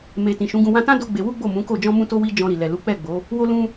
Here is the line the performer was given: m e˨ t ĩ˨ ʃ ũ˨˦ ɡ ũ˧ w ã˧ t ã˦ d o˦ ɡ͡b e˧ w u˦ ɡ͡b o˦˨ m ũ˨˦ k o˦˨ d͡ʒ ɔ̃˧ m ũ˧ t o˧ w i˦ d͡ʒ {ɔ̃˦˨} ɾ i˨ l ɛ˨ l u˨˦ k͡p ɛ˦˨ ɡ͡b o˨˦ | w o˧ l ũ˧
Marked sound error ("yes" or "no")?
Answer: yes